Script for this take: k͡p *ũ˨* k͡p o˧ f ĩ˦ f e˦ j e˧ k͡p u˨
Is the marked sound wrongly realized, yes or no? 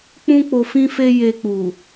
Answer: yes